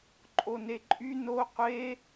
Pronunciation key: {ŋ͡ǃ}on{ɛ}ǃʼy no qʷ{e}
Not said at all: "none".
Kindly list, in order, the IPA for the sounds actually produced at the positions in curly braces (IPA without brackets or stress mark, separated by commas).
ǃʼ, e, e